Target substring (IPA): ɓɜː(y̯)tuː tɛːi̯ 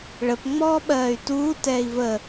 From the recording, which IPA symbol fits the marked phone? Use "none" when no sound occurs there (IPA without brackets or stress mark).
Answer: y̯